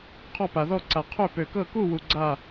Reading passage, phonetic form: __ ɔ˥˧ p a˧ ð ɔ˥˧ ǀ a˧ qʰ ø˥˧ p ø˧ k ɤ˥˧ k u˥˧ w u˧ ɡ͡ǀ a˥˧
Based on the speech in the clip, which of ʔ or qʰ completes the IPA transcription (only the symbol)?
qʰ